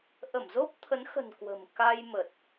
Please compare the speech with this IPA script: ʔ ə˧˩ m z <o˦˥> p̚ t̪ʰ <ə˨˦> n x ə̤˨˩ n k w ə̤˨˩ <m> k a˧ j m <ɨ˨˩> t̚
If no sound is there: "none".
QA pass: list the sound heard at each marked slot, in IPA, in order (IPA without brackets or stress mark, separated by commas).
o˦˥, ə˨˦, m, ə˨˩